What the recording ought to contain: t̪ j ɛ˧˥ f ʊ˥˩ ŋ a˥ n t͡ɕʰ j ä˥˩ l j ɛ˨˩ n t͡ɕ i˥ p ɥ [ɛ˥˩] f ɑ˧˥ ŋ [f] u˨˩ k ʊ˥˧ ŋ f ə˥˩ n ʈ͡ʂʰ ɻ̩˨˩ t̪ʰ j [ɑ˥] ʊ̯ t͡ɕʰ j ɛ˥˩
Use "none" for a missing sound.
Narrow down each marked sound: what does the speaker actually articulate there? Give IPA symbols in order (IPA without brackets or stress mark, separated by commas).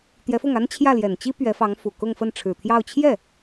ɛ˧˥, f, ɑ˥˧